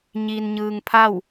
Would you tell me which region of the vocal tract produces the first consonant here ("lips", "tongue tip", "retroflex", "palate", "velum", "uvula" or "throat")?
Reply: palate